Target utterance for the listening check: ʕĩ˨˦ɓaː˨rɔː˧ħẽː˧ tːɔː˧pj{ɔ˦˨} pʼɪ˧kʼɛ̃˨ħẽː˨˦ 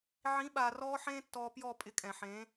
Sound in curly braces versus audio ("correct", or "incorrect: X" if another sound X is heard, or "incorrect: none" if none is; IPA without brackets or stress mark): correct